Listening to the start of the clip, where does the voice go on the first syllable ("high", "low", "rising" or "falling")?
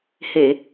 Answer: low